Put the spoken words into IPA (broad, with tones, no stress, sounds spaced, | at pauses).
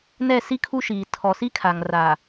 n ɛ˦˨ s i˦ kʰ u˦ ʃ iː˨ tʰ ɔ˨ s i˦ kʰ a˨ ŋ r aː˨